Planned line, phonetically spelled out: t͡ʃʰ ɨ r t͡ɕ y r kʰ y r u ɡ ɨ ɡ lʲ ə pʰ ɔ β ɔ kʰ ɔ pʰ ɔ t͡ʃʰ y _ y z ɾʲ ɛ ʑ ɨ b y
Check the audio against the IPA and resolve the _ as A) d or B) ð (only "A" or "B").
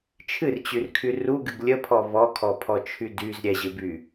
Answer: A